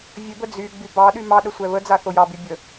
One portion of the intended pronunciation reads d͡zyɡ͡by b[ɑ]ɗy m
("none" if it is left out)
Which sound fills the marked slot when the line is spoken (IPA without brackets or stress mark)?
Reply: ɑ